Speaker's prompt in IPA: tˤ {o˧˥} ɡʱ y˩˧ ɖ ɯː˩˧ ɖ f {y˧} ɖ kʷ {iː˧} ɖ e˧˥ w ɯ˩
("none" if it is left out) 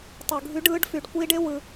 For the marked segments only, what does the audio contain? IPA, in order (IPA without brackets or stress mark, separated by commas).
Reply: o˩, y˩, iː˧